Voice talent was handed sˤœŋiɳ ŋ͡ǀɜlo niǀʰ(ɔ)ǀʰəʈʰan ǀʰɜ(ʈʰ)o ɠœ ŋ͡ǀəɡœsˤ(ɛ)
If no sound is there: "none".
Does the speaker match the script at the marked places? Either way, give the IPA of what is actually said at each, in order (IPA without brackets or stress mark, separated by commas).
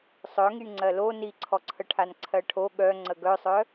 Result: ɔ, ʈʰ, œ